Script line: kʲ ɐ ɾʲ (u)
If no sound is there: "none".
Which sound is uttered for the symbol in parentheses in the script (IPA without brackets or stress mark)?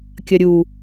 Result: u